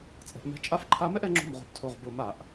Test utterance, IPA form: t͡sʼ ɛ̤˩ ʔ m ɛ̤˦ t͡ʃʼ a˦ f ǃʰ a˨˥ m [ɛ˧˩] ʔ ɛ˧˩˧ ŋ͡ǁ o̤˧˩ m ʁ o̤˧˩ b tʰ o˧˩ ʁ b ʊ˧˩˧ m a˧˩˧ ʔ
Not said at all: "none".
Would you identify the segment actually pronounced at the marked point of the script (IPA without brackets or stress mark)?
ɛ˦